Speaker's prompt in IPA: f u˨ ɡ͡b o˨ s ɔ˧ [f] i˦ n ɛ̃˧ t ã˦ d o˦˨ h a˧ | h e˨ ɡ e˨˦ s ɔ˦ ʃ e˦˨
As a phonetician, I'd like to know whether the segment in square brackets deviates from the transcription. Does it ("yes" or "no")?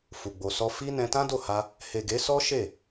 no